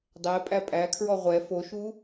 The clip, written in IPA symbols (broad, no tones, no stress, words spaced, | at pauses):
dˤɛ pʼæpʼækʰɹɔ ʁʷɛ foʃu